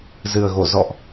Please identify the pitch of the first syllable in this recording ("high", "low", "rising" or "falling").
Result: low